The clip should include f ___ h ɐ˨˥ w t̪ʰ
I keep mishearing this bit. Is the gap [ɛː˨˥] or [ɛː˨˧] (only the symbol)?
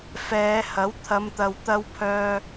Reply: ɛː˨˧